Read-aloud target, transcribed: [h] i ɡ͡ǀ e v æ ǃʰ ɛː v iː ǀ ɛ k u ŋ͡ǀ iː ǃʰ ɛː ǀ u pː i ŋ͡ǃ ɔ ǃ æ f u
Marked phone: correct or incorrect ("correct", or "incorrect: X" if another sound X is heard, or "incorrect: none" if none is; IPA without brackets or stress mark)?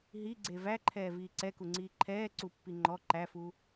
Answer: incorrect: ɦ